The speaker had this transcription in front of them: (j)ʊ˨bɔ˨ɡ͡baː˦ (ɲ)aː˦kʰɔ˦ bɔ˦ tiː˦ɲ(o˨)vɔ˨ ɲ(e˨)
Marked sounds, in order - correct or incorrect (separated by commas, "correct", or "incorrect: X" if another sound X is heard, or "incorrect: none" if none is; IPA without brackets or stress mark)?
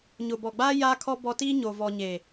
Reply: incorrect: ɲ, incorrect: j, correct, correct